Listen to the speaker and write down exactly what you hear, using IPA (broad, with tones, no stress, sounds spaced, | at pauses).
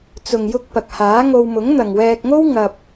t͡s ʊ˨ ŋ j ʊ˧ k̚ p ɐ˨ k̚ h aː˨˥ ŋ o˧ w m ʊ˨˥ ŋ n̪ ɐ˨ ŋ w ɛː˧ k̚ ŋ o˥ w ŋ ɐ˧ p̚